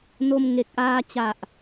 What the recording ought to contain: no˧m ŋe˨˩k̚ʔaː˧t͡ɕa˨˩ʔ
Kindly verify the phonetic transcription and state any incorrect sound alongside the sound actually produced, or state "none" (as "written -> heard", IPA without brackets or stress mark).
none